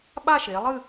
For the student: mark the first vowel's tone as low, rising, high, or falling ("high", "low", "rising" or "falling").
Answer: falling